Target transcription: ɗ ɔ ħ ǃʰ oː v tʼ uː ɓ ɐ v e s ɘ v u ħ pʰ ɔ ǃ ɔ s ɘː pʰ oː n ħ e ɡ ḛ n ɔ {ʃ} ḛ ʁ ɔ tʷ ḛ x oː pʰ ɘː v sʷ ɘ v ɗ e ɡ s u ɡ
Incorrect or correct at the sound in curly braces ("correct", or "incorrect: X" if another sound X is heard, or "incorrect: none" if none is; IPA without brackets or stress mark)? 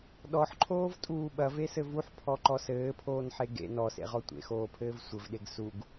incorrect: s